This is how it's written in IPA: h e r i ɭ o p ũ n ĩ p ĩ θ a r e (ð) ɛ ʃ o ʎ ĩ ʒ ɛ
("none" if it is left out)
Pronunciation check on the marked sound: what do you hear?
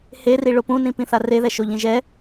ð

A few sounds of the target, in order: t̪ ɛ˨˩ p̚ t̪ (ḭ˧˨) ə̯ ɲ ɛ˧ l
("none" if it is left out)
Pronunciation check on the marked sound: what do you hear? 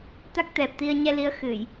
i˧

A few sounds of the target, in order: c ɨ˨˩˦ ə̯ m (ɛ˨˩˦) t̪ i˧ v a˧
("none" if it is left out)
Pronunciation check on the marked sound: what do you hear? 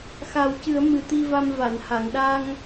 ɨ˨˩˦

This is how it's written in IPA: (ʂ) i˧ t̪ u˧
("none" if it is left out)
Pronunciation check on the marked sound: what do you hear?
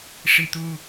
ʂ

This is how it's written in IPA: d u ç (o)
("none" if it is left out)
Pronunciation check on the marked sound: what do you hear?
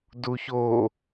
o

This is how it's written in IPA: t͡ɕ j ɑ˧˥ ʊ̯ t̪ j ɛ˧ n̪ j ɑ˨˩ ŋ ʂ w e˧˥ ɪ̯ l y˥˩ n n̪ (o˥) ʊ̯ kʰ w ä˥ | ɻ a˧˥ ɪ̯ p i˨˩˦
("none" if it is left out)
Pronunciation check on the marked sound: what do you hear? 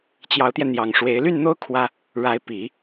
o˥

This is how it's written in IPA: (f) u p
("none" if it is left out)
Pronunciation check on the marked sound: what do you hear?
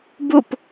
b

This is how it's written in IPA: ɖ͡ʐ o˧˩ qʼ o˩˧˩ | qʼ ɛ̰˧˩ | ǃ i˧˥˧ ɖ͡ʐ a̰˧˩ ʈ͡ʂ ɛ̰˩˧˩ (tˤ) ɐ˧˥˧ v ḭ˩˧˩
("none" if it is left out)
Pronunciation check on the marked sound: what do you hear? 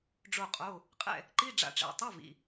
tˤ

